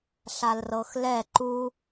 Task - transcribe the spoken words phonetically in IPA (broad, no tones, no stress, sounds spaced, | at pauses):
ɬ a l r ɤ x l ɛ ǃ u